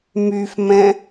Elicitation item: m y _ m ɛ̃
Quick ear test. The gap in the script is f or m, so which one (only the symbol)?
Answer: f